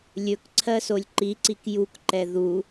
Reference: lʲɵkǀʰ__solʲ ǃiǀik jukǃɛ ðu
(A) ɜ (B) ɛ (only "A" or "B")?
A